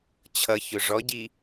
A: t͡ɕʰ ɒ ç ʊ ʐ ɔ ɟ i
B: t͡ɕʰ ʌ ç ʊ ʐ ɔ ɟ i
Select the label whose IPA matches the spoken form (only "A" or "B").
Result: B